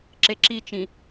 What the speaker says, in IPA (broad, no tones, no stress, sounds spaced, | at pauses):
ǁ e ǁ i t͡ʃ ĩ